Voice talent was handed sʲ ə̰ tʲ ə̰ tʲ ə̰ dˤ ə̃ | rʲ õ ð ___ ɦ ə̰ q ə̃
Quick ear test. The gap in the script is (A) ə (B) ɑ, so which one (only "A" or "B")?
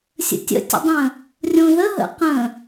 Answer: A